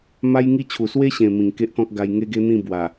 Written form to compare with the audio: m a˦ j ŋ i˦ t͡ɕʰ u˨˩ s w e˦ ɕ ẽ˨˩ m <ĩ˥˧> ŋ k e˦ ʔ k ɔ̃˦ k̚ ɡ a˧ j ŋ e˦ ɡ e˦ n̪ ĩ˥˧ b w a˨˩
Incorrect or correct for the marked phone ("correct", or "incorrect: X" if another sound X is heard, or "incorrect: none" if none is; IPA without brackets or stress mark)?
incorrect: ĩ˨˩